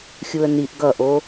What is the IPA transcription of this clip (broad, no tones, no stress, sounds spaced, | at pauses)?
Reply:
xʲ u ə̯ n i ʔ ɡ ʌ ʔ o